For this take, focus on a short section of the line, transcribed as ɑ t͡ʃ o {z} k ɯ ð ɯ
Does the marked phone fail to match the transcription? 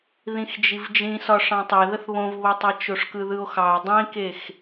yes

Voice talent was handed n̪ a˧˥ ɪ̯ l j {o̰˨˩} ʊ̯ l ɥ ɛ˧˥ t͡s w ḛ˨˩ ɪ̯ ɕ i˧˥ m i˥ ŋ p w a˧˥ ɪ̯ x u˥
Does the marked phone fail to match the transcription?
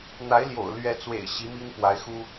no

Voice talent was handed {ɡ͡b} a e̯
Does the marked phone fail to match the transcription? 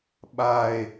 yes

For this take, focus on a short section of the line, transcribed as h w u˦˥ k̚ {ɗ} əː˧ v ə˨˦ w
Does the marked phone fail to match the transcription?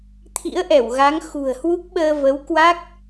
yes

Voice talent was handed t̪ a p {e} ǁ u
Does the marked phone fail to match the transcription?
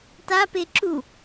no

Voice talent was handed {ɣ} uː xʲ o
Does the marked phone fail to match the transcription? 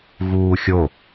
no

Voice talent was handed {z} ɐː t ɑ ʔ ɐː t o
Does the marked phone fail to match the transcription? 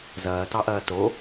no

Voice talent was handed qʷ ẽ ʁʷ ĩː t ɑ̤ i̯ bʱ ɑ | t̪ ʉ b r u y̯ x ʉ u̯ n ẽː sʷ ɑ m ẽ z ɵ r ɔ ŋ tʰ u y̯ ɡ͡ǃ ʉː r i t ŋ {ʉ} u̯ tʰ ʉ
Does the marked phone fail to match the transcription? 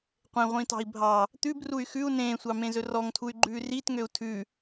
yes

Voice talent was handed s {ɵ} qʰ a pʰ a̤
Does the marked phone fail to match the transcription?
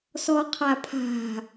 yes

